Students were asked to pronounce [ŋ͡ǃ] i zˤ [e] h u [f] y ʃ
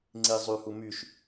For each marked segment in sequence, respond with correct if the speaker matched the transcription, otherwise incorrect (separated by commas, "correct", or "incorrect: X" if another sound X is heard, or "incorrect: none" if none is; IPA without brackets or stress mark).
incorrect: ŋ͡ǀ, incorrect: y, incorrect: m